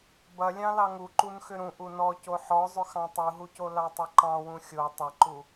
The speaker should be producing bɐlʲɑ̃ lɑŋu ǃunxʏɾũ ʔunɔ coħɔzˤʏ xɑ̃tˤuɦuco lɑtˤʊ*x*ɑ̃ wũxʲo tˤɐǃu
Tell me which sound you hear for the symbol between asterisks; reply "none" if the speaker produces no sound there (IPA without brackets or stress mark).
ǃ